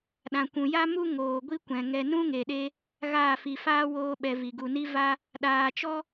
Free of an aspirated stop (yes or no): yes